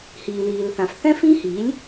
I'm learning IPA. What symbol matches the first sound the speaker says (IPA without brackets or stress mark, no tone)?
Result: h